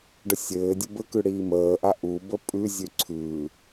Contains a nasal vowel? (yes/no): no